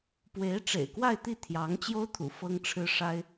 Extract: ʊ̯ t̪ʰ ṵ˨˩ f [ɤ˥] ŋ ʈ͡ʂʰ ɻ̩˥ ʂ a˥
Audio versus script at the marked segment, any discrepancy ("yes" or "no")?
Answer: no